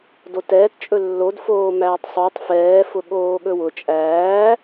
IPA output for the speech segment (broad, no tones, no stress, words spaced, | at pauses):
dotɛːt t͡ʃʼɵlːod foːmæːtˤsˤutˤ fɛː fʊɠoːɠɵwʊ t͡ʃʼæː